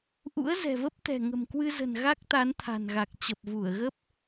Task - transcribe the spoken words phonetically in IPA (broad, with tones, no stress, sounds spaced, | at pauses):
ʔ ṵ˧˥ ə̯ z ɛ̤˨˩ v ə˦˥ p̚ t̪ ɛ̤˨˩ ŋ ə̤˨˩ m k w ɨ˧ z ə̤˨˩ n ɣ a˦˥ k̚ t̪ a˨˦ n t̪ʰ a̤˨˩ n ɣ a˨˩ k̚ t͡ɕ ə˨˩ p̚ v u˧˩ ə̯ ɣ ə˦˥ p̚